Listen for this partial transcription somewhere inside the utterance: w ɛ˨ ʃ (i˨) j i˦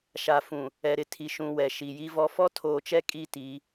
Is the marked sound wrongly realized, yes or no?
no